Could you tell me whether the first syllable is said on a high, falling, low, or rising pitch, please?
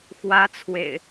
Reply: high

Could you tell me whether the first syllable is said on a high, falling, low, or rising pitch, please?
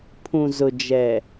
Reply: low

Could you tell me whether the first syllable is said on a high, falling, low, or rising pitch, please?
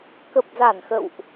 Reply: low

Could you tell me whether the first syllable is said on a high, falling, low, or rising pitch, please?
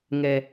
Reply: low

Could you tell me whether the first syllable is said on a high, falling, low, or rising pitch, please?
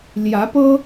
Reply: rising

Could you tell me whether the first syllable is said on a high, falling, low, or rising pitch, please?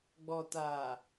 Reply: low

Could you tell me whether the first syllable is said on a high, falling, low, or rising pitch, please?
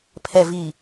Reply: low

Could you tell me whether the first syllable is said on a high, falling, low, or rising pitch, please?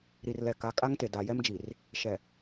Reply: low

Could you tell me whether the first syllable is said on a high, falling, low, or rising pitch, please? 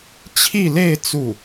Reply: falling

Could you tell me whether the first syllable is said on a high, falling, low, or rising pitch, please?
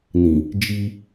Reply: low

